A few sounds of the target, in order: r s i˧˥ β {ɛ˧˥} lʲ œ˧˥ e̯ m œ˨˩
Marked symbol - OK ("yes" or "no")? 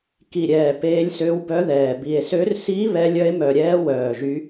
yes